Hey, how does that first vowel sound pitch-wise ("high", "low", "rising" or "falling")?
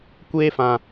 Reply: high